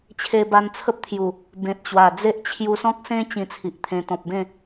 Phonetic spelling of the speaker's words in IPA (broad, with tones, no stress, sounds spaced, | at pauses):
t͡ɕʰ e˧ b a˧ n t͡sʰ ə˦ p̚ t̪ʰ j u˨˩ | b ẽ˨ t̚ t͡ɕ w a˨˩ d͡z e˦ ʔ t͡ɕʰ j u˧ s ɔ̃˦ k̚ s ẽ˦ t͡ɕ ĩ˧ t͡sʰ i˨ ʔ t̪ʰ ẽ˧ t̪ ɔ̃˨ p̚ b ẽ˥˧